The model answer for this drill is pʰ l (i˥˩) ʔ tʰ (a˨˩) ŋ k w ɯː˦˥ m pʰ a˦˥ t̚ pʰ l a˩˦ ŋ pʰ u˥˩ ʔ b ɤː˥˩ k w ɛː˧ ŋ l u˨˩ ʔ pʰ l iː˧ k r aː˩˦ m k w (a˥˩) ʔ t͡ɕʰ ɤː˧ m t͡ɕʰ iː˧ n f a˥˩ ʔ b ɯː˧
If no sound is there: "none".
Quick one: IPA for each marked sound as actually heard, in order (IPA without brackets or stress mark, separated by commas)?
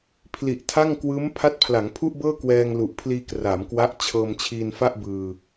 i˨˩, a˥˩, a˦˥